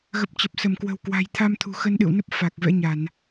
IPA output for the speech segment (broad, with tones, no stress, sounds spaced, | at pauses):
ɣ ə˨˩ p̚ t͡ɕ ə˨˩ p̚ s ə˧˩ m k w ə̤˨˩ w k w a̤˨˩ j t̪ʰ a˧ m t̪ʰ ṳ˨˩ x ə˧ n ɗ ɨ̰˧˨ w n ə˦˥ p̚ f a˨˩ k̚ v ɛ̰˧˥ ɲ a˧˩˨ n